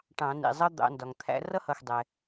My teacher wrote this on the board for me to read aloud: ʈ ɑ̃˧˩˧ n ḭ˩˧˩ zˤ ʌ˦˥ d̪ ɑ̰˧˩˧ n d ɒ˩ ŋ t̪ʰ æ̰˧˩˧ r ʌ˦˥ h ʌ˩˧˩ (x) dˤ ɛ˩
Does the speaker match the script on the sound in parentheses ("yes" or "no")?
yes